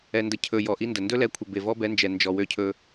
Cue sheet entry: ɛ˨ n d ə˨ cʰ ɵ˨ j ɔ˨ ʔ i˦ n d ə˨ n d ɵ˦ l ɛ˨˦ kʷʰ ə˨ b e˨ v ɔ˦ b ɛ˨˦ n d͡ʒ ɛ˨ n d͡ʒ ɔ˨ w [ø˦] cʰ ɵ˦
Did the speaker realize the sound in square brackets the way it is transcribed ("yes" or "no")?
yes